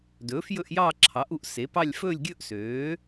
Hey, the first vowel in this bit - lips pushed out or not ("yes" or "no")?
yes